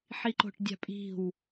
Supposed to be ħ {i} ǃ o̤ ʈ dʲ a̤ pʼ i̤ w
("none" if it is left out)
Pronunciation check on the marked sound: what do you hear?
i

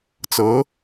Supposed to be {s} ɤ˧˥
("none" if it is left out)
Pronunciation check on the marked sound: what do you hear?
t͡s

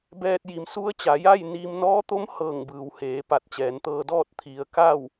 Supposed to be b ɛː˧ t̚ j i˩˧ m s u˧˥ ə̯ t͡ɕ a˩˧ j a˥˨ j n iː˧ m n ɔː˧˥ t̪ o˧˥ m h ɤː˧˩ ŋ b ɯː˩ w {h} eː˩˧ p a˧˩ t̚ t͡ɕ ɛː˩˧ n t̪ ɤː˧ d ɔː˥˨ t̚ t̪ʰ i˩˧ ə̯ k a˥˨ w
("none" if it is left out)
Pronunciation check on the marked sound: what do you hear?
h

